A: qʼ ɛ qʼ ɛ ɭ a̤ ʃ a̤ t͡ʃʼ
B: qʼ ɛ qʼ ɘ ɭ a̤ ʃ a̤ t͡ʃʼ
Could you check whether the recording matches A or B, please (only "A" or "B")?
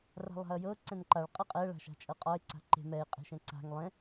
A